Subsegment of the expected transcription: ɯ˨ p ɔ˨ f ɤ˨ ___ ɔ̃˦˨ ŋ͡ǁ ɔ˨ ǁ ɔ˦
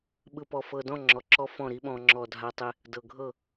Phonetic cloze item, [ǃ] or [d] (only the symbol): d